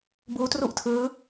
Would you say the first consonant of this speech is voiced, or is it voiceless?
voiced